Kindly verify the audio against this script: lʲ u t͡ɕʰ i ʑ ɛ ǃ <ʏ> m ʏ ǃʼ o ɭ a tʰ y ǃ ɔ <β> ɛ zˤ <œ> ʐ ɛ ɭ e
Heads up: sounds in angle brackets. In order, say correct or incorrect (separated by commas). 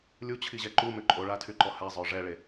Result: incorrect, incorrect, correct